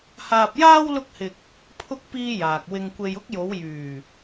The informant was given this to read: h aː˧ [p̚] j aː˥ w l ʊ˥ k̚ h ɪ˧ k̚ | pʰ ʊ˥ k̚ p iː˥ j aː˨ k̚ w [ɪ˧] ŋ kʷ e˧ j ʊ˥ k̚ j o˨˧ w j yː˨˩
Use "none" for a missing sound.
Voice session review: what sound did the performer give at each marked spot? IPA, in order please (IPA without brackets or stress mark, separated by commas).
p̚, ɪ˧